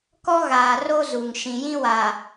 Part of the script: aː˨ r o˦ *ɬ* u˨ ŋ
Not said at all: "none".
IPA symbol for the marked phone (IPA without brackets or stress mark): z